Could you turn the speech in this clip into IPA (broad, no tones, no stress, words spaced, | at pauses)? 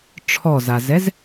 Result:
ʈ͡ʂʰɔzazɛz